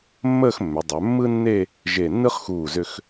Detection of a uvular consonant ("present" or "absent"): present